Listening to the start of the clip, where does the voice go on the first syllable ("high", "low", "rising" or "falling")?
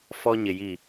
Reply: high